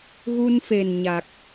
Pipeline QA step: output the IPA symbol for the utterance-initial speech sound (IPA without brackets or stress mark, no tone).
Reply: ɣ